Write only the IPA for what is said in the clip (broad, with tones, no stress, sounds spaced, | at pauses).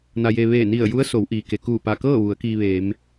n a˧ j e˧ ʋ eː˧˩ n i˧˩ ə̯ j u˧˥ ə̯ s o˩˧ w ʔ iː˩ k e˩ k uː˧˩ p a˧˩ k ɤː˥˨ ʋ u˩˧ ə̯ k iː˧ ʋ eː˩˧ m